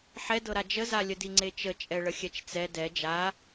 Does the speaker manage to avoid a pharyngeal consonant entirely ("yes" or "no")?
no